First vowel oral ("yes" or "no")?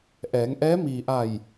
yes